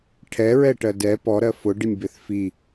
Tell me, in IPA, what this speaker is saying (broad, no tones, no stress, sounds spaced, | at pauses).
ʈʰ ɛ ɹ ɛ ʈ ɜ d ɛ p ɔ ɾ ɜ f ʊ ɖ ɪ nʲ b ɪ θ f i